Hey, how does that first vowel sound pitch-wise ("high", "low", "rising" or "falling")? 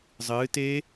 rising